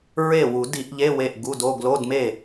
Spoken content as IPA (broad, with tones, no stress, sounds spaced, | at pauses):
ɹ e˥˩ w u˨˩˦ d i˨˩˦ ʔ ʎ e˧˥˧ w e˥˩ ʔ ɡ u˧˥˧ d o˧˥˧ ɡ l o˧˥˧ d m e˥˩